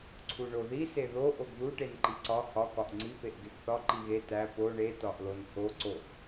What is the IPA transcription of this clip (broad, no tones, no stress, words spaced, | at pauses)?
ǀʰuɳoði seðo ʔoɡðu ʈenǃiǀɒ hɒ kɒʔŋ͡ǀi peʔɡeɡθɒ ǃiɣe tæ po ɳe tɒʔlonho ǀoʔ